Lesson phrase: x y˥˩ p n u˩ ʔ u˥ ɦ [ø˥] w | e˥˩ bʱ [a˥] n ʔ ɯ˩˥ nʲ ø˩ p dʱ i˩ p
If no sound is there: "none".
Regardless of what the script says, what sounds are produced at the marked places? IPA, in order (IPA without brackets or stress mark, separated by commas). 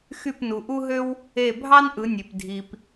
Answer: ø˥, ɑ˥